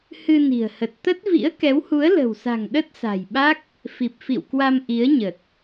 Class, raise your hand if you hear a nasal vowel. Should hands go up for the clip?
no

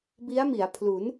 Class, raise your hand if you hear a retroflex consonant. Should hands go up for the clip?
no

